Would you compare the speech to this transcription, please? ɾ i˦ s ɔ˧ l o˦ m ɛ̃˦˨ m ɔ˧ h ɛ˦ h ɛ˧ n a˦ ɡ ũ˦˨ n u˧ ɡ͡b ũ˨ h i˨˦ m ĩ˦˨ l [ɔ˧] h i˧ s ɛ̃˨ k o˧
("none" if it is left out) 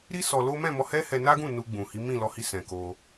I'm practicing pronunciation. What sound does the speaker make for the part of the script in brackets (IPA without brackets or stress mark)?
ɔ˧